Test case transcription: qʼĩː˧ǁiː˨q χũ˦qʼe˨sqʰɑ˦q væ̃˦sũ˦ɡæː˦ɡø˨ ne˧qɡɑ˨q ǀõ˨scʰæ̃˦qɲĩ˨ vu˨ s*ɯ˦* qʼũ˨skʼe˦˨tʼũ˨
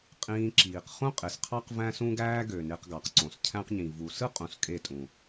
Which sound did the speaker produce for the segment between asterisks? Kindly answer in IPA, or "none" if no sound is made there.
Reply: ɯ˦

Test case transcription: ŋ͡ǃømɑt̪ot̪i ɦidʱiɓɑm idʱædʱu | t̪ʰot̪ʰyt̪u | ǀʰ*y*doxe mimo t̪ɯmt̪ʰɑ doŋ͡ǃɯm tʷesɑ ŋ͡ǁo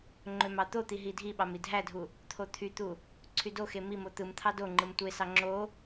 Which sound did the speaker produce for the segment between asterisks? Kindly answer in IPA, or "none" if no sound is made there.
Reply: y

